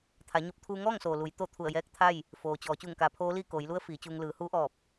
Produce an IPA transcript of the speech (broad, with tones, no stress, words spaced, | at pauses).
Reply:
t̪ʰa˩˧ ɲo˧p̚ t̪ʰuː˧ŋɔː˥˨ŋsoː˩ lu˩˧jt̪o˥˨ t̪ʰu˧˩ə̯jɛː˧˥k̚t̪ʰa˥˨j | foː˩t͡ɕɔː˩˧ t͡ɕuː˧˩ŋkaː˩˧pʰoː˧˥liː˥˨ koː˩˧jlu˧˥ə̯ fiː˩˧t͡ɕuː˧ŋ lɯː˩˧huː˧˥ʔɔː˧˩p̚